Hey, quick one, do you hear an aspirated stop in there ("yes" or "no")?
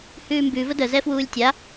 no